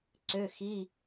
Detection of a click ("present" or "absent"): present